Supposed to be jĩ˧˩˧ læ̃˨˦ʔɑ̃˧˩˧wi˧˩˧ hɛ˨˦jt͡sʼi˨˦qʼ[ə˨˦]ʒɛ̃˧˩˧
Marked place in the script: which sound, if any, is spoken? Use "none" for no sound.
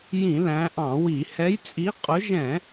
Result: ʊ˨˦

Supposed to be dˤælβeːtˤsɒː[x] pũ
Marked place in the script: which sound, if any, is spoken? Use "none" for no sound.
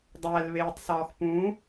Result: x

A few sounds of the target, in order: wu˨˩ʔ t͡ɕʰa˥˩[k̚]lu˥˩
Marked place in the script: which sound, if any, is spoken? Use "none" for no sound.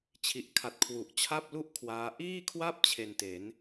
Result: p̚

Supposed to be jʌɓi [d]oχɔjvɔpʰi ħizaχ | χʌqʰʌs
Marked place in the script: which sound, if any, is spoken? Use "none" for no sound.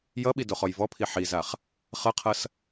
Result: d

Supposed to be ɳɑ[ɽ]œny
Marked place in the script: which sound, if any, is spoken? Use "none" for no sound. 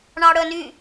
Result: ɽ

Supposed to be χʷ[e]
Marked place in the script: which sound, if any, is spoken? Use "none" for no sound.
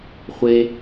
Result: e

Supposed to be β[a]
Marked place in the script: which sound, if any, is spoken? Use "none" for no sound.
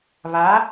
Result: a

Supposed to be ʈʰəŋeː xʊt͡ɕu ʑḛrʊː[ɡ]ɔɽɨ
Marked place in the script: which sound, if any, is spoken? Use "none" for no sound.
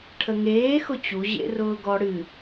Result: ɡ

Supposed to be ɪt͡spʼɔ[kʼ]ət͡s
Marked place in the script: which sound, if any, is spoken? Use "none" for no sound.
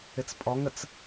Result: ŋ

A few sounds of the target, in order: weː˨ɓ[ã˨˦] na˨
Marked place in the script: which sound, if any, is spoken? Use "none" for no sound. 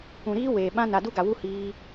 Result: ã˦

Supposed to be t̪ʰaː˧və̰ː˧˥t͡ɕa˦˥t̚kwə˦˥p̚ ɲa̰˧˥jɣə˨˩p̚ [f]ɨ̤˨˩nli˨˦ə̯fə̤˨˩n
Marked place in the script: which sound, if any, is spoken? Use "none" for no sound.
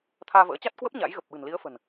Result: ɓ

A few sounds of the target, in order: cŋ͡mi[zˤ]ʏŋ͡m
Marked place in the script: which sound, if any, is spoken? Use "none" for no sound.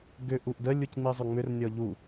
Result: zˤ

